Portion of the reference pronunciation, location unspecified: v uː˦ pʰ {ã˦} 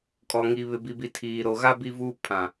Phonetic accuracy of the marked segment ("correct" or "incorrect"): incorrect